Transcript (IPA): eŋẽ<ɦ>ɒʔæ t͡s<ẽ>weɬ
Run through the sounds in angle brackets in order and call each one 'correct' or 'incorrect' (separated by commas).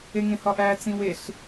incorrect, incorrect